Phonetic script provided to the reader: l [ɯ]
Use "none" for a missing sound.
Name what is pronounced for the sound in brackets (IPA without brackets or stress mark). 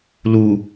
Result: u